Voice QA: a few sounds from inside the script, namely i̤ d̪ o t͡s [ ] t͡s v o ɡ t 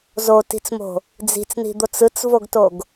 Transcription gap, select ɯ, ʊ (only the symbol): ɯ